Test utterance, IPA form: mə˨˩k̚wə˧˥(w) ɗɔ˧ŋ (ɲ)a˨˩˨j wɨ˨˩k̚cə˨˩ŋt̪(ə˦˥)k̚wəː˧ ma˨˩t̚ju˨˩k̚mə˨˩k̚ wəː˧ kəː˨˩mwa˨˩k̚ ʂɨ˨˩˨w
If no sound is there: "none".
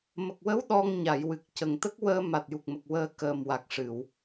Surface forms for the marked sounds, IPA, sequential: w, ɲ, ə˦˥

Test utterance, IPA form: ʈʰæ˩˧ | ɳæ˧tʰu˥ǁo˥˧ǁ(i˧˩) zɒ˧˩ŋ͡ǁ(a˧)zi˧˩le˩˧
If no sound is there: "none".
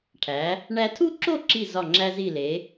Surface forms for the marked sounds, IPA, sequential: i˧˩, æ˧

